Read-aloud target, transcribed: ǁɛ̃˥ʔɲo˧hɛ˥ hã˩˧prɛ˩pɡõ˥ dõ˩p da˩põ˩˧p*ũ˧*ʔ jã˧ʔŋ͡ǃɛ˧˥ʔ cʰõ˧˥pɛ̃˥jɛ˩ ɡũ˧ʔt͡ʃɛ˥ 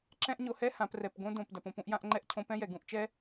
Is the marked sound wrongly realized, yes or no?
no